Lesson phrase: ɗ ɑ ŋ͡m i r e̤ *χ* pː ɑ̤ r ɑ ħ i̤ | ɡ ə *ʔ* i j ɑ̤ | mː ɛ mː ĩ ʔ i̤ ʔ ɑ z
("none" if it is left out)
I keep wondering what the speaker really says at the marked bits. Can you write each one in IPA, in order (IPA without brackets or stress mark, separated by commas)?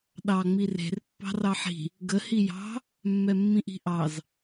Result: r, h